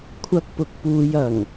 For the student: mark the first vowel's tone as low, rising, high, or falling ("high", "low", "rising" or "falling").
high